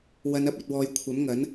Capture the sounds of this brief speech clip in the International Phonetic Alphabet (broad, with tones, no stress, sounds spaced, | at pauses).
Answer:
w ɐ˨˧ n ɐ˧ p̚ ɐ˧ t̚ w ɔː˧ j kʷʰ ɐ˨˥ m ŋ ɐ˨˥ n